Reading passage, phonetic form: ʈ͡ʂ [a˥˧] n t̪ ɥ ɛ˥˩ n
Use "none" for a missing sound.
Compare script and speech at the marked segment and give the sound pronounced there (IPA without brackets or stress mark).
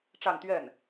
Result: a˥˧